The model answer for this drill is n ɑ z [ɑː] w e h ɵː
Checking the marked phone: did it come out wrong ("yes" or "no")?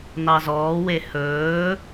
yes